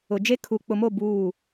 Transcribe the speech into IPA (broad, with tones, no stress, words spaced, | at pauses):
ʊ˨d͡ʒe˦kʰu˨ k͡pʊ˨mo˦˨ buː˦˨